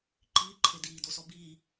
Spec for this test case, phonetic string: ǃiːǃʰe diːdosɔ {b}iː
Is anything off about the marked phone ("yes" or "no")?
no